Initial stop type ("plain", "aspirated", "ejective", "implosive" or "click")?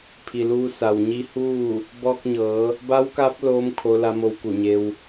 aspirated